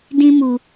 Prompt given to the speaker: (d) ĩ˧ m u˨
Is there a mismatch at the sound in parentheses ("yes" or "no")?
no